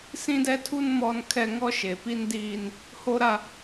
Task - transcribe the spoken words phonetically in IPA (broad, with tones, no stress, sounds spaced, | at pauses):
s ĩ˦ d ɛ˦ tʰ u˦ n m ɔ˦ n kʰ ɛ˦ ŋ ɔ˦ ʃ e˨ p i˦ n d iː˦ n | h o˦ ɾ a˦